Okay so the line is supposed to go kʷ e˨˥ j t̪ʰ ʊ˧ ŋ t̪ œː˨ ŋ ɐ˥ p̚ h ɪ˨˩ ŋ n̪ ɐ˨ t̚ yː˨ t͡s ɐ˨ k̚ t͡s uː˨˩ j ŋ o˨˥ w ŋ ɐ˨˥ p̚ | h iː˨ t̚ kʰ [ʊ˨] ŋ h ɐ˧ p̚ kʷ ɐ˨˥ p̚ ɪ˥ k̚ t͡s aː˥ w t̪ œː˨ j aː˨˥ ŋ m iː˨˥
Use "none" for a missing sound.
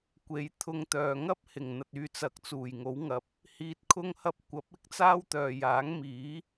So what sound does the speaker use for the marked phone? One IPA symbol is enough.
ʊ˧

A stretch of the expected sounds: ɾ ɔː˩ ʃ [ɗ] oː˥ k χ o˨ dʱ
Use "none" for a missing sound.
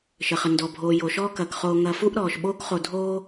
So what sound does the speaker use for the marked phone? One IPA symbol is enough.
ɓ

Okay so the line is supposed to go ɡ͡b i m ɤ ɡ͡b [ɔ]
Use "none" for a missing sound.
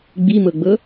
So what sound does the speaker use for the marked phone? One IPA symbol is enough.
ɤ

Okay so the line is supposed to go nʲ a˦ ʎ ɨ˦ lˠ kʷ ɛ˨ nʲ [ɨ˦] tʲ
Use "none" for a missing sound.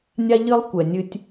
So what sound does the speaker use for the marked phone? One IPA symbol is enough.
ɨ˦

